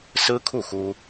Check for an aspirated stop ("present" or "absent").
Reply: present